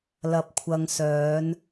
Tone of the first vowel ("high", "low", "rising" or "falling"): low